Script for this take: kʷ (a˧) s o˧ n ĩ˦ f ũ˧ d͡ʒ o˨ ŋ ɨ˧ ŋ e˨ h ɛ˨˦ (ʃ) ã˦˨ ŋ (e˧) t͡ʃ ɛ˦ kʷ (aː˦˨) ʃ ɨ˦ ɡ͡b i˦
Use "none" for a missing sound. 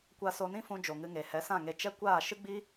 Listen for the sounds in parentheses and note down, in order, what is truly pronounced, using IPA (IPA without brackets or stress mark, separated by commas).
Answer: a˧, s, e˧, aː˦˨